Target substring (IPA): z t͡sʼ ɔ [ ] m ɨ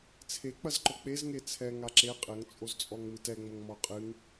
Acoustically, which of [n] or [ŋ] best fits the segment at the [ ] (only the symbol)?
ŋ